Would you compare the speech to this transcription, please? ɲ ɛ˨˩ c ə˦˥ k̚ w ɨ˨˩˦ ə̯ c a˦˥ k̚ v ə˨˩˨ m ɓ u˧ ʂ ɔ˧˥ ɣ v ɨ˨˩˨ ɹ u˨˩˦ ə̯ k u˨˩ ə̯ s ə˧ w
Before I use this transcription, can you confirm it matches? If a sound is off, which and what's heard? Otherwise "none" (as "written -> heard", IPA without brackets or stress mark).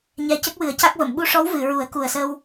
ɣ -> w